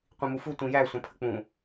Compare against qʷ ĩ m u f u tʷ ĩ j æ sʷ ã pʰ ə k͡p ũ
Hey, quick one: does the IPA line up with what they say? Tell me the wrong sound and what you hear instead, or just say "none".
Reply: none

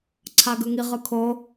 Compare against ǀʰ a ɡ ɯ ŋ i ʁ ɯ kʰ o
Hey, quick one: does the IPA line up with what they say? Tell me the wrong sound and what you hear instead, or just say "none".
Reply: none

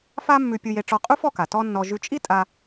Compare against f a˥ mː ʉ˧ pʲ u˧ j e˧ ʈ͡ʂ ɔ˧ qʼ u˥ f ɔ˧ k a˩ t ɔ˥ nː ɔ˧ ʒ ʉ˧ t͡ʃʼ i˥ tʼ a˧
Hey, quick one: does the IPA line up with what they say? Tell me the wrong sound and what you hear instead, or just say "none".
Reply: none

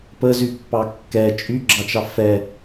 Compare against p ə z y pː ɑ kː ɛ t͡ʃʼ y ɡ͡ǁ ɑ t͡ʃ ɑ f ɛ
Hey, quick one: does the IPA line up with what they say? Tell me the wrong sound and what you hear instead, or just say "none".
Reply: none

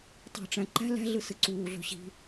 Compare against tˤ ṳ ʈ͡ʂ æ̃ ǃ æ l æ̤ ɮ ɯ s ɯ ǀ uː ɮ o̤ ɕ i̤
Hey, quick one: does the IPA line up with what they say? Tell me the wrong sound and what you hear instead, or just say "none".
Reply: æ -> æ̤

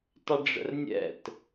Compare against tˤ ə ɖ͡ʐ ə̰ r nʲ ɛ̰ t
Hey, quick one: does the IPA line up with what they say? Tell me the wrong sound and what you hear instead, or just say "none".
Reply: none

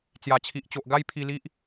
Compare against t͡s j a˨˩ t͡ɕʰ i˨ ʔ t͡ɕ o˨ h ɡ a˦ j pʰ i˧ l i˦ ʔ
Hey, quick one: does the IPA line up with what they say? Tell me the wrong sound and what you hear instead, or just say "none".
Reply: h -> ʔ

